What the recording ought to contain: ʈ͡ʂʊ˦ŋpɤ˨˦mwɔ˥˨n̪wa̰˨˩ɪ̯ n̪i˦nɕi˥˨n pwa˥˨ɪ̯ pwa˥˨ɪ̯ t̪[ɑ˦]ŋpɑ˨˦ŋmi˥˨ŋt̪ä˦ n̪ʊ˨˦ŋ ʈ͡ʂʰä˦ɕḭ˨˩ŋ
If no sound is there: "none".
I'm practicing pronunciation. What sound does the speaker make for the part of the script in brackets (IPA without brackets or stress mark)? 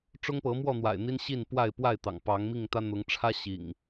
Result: ɑ̰˨˩